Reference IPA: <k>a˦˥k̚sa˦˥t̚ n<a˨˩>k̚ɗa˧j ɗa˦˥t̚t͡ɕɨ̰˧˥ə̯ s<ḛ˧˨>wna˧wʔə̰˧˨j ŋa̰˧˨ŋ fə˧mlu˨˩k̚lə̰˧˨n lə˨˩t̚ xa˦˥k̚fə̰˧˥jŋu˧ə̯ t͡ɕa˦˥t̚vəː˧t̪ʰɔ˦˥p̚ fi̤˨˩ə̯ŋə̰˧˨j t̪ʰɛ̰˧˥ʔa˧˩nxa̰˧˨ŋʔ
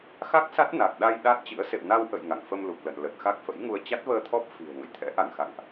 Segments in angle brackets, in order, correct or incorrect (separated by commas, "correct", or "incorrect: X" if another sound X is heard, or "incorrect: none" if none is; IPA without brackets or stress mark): incorrect: x, correct, correct